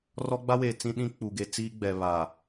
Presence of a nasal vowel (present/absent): present